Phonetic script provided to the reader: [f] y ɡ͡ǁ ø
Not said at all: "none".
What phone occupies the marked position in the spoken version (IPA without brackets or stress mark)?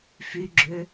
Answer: f